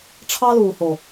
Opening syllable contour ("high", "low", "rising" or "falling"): high